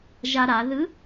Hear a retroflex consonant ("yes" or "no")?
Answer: no